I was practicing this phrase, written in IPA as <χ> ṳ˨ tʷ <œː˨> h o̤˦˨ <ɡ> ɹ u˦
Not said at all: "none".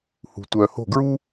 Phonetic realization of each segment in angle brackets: h, œː˨, ɡ

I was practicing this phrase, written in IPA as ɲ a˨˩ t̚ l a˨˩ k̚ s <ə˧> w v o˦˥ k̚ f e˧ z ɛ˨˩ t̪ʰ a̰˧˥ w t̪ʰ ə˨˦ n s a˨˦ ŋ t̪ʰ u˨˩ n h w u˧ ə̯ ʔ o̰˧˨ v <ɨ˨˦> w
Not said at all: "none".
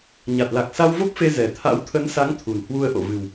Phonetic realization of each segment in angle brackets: a˧, ɨ˨˩

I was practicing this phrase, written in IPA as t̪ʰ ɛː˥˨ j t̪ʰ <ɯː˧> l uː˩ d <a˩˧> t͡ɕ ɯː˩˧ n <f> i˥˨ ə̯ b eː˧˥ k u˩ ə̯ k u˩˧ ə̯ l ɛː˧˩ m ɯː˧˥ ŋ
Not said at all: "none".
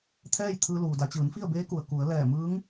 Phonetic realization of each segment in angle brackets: ɯː˧, a˩˧, f

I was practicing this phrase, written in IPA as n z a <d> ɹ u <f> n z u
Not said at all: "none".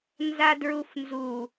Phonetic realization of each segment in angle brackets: d, f

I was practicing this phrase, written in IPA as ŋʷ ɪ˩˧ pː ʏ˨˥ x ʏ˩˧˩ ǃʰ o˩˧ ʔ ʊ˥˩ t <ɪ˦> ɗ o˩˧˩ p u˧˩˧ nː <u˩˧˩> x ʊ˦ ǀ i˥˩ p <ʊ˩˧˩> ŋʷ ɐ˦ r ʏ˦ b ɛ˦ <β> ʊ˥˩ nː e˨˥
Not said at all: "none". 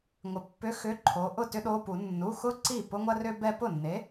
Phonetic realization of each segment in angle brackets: ʏ˦, u˩˧˩, ʊ˦, p

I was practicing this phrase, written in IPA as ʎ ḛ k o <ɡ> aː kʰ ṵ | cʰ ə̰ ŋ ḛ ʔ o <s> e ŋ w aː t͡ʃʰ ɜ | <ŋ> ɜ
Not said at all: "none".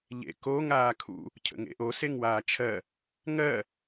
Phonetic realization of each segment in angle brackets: ŋ, s, ŋ

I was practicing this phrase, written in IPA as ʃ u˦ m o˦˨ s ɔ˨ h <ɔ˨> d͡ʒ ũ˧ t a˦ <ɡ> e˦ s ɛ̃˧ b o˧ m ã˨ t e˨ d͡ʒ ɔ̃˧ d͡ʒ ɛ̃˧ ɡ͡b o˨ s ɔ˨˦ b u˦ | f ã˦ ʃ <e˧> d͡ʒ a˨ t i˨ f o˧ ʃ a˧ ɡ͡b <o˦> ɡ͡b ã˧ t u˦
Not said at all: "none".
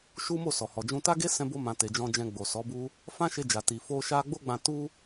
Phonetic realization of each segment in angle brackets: ɔ˨, ɡ, e˧, o˦

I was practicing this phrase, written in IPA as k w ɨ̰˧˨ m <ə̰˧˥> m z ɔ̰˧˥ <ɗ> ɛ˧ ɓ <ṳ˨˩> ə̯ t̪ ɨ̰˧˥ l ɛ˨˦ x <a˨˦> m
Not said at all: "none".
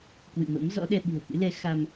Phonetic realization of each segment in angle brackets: ə̰˧˥, ɗ, ṳ˨˩, a˧

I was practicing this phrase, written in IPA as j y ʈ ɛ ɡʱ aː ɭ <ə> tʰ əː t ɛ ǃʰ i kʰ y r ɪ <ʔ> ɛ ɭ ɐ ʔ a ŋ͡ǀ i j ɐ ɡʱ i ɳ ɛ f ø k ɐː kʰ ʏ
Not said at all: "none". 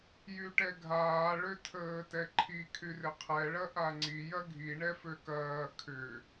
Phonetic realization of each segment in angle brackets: ø, qʰ

